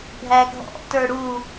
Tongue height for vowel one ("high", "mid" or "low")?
low